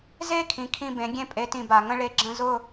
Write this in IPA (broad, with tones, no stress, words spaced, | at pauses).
ze˥ kʰĩ˩˥kʰĩ˥˩bẽ˩˥ ɡʲẽ˥˩pʼe˩˥tĩ˩ ba˩ŋə̃˥ ɭe˧ ɡ͡ǁə̃˥˩zʊ˥˩